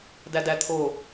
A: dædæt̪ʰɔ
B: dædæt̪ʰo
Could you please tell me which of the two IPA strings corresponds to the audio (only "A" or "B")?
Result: B